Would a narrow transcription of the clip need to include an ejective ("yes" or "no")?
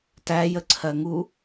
no